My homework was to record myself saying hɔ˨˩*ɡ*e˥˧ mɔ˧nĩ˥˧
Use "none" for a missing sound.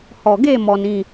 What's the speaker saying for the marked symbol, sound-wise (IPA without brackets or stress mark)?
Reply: ɡ